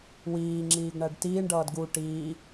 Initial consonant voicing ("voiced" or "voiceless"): voiced